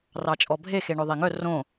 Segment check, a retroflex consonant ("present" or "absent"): present